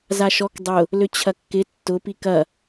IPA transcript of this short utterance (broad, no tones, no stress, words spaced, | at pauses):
zaʃɔk dˤʊ | løt͡ɕʰɐkːɪ tːʊpik ɐ